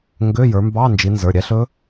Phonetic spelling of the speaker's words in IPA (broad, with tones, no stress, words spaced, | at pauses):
ŋɡø˧˥˧jə˞˨˦mbɑ˧˥˧ nd͡ʒi˨˦nzə˞˩˧˩ɾʲɛ˦˥ ɬɵ˦˥